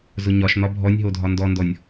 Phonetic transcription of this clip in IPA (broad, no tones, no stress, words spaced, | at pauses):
zʊɲɒʃn̪ɒ bʱɔnʲɦodʱɒ ndɔndɔnʲ